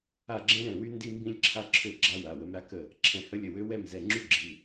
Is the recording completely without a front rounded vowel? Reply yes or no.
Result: no